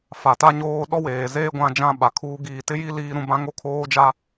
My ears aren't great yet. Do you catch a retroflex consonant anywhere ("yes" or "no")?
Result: no